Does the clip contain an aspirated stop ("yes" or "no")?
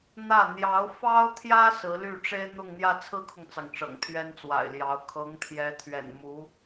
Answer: yes